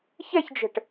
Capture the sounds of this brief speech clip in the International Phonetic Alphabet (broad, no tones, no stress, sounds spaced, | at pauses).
ç ɛ ç d͡ʒ ə̤ ʈ